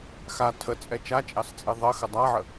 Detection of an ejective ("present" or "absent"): present